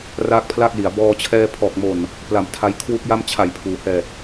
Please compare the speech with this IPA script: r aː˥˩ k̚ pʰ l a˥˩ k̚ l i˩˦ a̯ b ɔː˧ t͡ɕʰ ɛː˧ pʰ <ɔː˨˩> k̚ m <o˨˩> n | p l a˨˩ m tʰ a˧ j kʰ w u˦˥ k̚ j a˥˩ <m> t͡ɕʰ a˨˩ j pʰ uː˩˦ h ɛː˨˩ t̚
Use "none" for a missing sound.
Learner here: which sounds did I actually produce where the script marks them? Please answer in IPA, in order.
ɔː˨˩, o˨˩, m

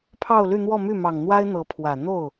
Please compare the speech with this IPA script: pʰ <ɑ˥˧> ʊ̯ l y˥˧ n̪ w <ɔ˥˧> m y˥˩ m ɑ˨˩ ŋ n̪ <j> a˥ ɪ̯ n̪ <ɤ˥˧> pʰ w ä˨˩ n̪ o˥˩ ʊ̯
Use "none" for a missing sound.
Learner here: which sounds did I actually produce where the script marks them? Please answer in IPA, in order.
ɑ˥˧, ɔ˥˧, w, ɤ˧˥

